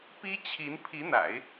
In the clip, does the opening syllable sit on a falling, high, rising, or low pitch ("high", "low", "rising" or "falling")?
high